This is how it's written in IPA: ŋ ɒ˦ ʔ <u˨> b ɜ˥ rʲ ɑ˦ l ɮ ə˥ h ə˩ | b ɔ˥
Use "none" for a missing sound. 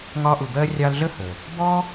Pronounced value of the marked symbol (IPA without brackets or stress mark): u˨